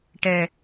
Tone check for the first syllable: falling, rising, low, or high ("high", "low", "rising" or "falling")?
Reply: low